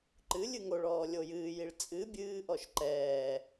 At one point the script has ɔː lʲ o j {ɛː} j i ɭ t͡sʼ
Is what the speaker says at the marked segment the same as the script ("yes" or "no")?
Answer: no